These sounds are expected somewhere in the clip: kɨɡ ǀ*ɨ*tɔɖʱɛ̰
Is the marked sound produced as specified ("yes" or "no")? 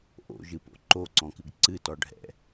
yes